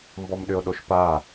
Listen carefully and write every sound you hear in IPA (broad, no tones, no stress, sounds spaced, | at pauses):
m b ɔ m ɗ ʏ o̯ ɗ o ʃ p a